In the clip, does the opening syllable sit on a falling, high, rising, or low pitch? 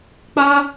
high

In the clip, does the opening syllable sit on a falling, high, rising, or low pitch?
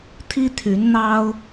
high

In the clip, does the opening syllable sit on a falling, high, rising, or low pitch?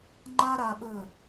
high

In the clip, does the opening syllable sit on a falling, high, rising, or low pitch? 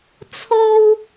high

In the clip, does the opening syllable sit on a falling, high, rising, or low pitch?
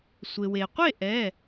low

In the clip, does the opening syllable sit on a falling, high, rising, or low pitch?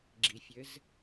low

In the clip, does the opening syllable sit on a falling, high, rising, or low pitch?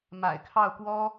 low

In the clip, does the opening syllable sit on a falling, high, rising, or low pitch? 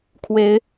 rising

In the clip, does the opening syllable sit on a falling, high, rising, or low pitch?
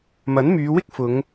rising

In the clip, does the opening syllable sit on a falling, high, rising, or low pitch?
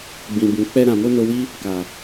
low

